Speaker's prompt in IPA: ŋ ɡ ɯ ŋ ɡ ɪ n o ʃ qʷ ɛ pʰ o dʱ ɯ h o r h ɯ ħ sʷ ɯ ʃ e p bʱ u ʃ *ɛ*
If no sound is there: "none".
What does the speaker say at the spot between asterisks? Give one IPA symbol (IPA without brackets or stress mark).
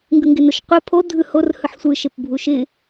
ɪ